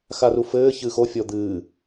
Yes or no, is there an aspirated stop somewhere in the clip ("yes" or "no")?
no